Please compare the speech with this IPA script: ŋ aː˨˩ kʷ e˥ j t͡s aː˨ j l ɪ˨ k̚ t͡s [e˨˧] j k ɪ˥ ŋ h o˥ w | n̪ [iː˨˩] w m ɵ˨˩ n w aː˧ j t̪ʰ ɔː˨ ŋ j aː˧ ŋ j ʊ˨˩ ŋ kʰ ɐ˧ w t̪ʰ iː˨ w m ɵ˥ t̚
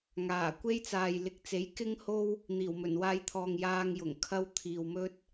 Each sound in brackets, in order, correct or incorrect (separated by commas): incorrect, correct